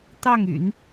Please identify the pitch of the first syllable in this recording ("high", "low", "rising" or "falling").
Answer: falling